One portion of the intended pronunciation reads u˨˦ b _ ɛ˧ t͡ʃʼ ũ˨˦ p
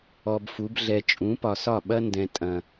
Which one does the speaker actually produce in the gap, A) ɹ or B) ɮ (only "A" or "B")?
B